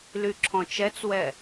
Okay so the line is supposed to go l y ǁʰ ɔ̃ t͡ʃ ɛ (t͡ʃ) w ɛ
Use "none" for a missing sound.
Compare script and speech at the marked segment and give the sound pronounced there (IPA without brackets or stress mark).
t͡s